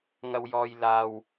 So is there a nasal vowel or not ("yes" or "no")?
no